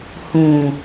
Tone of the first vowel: low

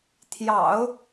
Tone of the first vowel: low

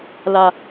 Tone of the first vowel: low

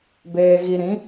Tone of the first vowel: low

